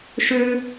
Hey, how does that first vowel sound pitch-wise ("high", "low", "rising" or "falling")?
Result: high